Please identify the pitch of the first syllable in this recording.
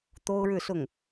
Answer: high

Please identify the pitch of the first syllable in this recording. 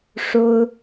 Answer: high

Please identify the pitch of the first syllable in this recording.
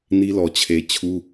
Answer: high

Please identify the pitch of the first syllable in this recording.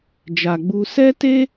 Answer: low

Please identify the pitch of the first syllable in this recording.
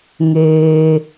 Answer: low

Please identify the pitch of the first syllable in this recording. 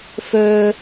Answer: high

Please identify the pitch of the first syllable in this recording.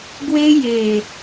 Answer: high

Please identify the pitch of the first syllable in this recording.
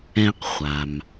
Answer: high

